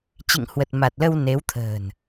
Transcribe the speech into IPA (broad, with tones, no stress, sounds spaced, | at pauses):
t͡ɕ ḭ˧˨ ŋ h w ə˨˩ t̚ m a˨˩ t̚ l ə˧ w n e˨˦ w t̪ʰ ə̤ː˨˩ n